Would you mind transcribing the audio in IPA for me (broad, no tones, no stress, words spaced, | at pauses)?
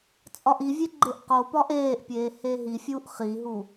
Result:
t͡sʼɒʔivʲe ɡ͡ǃeʔqopɒʔ eːʔpʲeː heɦifʲuːʔ χiɦu